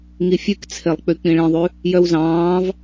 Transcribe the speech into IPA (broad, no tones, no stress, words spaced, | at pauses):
ŋifʲʉkt͡sʰelˠk͡py k͡pĩɭĩðˤʉ | jœwzɑ̃ːv